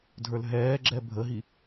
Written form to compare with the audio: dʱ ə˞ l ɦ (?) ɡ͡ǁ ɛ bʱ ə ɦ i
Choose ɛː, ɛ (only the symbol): ɛː